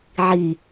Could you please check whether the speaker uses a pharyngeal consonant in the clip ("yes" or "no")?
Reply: yes